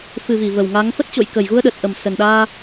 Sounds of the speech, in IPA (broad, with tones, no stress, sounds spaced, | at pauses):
f ɨ˨˩ v i˧˩ v ə˨˩ w ŋ a˨˦ ŋ f ə˦˥ t̚ t͡ɕ o̰˧˨ j k ə˨˩ j ɣ u˧ ə̯ ɗ ə˨˩ t̚ ʔ ə˨˩ m s ə˨˩ n ɗ aː˧